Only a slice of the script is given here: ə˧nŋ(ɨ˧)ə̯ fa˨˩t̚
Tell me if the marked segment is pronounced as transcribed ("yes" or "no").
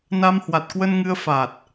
yes